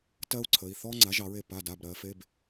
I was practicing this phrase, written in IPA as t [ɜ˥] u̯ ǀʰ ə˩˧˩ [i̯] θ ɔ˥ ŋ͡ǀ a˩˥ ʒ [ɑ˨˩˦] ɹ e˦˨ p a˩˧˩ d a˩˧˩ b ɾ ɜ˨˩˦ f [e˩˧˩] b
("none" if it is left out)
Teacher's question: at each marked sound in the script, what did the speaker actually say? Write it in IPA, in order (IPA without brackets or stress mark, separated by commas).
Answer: ɜ˥, i̯, ɑ˨˩˦, e˩˧˩